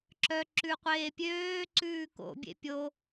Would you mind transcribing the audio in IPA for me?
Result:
ǁ œ ǁ ʉ qʷ eː pʲ øː ǀ ʉː k o̰ bʲ ḛ pʲ o

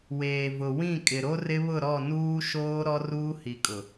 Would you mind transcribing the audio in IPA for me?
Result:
w eː˨ v ʊ˨ w ĩ˦˨ kʼ ɪ˨ ɾ o˦ r ɪ˦ β ʊ˦˨ ɾ ɔ˦˨ n uː˦ ʃ oː˦ ɾ ɔ˦ r uː˦ h i˨ kʼ ʊ˨

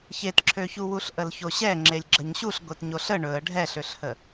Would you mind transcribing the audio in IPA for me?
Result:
ç e t ǁʰ ø ç u w u ɬ ʔ ə l ç o ɕ ɛ ŋ͡ǁ e lʲ ɡ͡ǁ ə ɲ ɕ u ɬ ɡʷ e t ɲ o ɬ ə ɳ ɵ ə̯ ɖʱ ɛ ɬ ø ɬ h ə

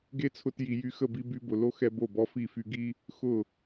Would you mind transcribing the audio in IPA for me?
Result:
ɡ e˦ t͡sʰ ʊ˧ t j i˨ j y˧ x ə˦˨ b i˧ b y˧ b ʊ˨ l o˦ x ɛ˧ b o˦˨ b ɔ˦ f i˦˨ f y˧ ɡ i˧ | x ʊ˦˨

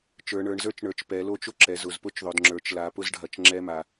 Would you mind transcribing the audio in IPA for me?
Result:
t͡ʃ ə˞˩˧ ɳ ə˞˩˧ ɳ z ə˞˦˥ t͡ʃ ɳ ə˞˩˧ t͡ʃ p ɛ˩˧ l o˦˥ t͡ʃ ʊ˦˥ ǁ ɛ˩˧ z ʊ˩˧ z p ʊ˦˥ t͡ʃ ðˤ ʊ˩˧ d ŋ͡ǁ ə˞˩˧ t͡ʃ l a˩˧ p ʊ˦˥ z ɖʱ ɐ˩˧ t͡ʃ ŋ͡ǁ ɛ˦˥ m a˩˧

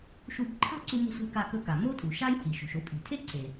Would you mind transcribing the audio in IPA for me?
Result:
ʃ u˧ b ǃʰ a̤˥ ǀ u˧ m o̤˧ sʷ e̤˧ k a˧ k ɵ˧ k a˩ m o˥ tʼ u˩ ʃ a˥ j h i˩ ʃ o̤˩ ʃ o˧ pʼ i̤˩ tʰ e˥ ǀ e˩

